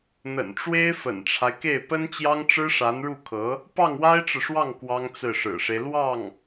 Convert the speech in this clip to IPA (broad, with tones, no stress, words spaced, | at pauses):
n̪ə̰˨˩nʈ͡ʂwe˥ɪ̯ fə̰˨˩nʈ͡ʂʰa˦ɪ̯ke˥˩ɪ̯ pə˥nt͡ɕjɑ˥ŋʈ͡ʂɻ̩˥ʂa˧˥n ɻu˥˩kʰɤ˧˥ | pɑ˥˩ŋwa˥ɪ̯ʈ͡ʂɻ̩˨ʂwɑ˥˩ŋ kwɑ˥ŋt͡sɹ̩˥˩ʂɻ̩˨˩ʂe˦ɪ̯ lwɑ˥˩ŋ